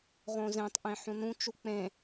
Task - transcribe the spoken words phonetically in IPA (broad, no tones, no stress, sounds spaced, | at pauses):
ʁ õ z ẽ tˤ ʔ ẽ ħ ũ n ũ t͡ʃ u k͡p ẽ